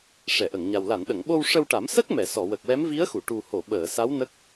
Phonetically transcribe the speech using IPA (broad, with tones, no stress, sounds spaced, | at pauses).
ʂ ɛ˨˩˨ ʔ ə˨˩˨ ŋ ɲ a˨˩ w l a˨˩˨ n ɗ ə˨˩˨ ŋ ɓ o˧ w ʂ ə˧ w ʈ a˨˩˦ m s ə˦˥ k̚ m ɛ˨˩˨ s ɔ˨˩˨ w ə˨˩ k̚ w ɛ˧˥ m v i˧˥ ə̯ x u˨˩˨ ʈ u˨˩ h o˨˩˨ ɓ əː˨˩˨ s a˧˥ w n ə˦˥ k̚